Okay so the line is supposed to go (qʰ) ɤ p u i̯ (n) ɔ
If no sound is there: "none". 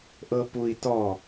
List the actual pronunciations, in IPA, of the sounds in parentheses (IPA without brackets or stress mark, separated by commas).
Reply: ʔ, t